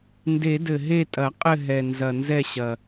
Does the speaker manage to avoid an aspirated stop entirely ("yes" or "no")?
yes